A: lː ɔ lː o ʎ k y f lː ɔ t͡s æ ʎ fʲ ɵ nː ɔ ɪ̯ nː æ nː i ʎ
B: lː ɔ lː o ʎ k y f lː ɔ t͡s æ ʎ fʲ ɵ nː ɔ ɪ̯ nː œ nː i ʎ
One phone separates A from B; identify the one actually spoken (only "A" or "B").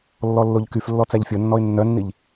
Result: B